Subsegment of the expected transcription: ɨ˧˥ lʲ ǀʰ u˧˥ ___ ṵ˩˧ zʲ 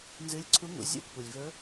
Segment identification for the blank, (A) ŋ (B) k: A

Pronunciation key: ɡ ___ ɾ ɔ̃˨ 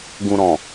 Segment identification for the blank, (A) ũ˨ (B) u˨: A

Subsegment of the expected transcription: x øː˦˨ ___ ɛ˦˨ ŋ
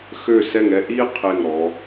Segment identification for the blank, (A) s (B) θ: A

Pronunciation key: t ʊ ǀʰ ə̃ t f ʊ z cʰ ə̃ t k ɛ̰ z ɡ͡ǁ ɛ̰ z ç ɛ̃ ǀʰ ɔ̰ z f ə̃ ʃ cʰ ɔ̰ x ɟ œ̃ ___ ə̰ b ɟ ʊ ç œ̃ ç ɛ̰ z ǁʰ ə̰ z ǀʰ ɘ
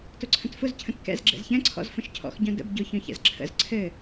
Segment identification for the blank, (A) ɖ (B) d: B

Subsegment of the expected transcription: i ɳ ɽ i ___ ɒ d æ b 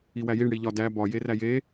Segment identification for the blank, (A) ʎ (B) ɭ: A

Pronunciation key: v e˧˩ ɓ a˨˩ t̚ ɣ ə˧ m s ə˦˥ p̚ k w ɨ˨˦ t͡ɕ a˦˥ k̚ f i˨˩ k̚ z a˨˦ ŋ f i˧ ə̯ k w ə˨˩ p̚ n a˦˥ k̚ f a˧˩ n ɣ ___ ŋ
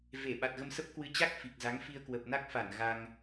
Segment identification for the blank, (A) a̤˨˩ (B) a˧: B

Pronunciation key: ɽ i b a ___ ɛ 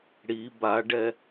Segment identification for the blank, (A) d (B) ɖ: B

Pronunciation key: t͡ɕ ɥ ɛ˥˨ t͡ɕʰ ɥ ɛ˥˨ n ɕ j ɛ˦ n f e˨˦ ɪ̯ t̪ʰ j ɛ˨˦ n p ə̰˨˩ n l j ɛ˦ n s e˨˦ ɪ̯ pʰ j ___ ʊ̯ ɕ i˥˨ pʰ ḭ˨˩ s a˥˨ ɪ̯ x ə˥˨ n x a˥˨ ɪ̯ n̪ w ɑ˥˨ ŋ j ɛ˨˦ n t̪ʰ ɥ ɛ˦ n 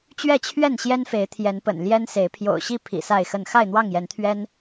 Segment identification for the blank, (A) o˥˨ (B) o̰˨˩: B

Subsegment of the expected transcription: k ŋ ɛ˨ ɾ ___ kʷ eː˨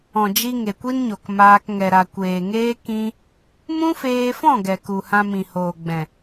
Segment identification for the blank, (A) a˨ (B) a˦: A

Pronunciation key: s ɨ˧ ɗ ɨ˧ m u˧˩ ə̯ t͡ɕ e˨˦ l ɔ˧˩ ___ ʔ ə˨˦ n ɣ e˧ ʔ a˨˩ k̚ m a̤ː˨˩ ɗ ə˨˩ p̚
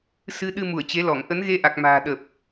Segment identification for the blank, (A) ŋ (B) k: A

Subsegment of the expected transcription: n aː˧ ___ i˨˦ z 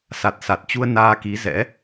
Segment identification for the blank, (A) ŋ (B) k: B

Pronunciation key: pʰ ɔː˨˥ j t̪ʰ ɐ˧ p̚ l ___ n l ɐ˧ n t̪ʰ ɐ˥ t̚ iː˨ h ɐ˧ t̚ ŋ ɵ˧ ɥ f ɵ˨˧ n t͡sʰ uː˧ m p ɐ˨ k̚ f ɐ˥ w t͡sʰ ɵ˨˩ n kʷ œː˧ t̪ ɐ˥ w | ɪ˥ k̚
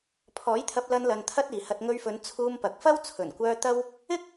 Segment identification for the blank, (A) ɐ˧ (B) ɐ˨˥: A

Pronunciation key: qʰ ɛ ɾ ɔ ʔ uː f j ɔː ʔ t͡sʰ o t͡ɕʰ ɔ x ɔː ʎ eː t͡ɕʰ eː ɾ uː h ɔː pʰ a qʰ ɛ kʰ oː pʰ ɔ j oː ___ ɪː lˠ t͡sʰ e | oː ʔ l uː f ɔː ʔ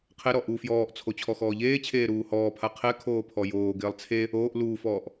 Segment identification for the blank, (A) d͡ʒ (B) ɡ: B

